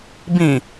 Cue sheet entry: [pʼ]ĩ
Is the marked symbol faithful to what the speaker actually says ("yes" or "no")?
no